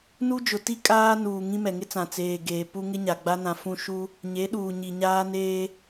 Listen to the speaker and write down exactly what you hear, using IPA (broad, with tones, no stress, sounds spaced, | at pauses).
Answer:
n u˦ d͡ʒ ʊ˨ t i˦ kʼ aː˦ n uː˨ ŋ ĩ˦ m ɛ˨ ŋ ɪ˦ t͡s ã˨ t͡s eː˨ ɡ eː˨ p u˦ ŋ ɪ˦ ɲ a˨ ɡ͡b a˦ n ã˨ f ũ˦˨ ʃ u˦ | ɲ e˨˦ ɗ uː˨ ɲ i˨ ɲ aː˦ n eː˦